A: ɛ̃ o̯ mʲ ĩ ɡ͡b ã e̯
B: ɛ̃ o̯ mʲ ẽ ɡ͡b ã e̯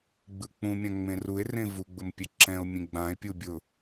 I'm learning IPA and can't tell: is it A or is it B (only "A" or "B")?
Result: B